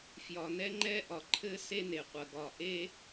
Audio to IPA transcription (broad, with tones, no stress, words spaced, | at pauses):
fjɒ˨nɛ˦ ŋ͡ǃɛ˦ʔɒ˨ǃʰɘ˦ se˦ne˨qʷɐ˨ ɡɒ˨ʔe˦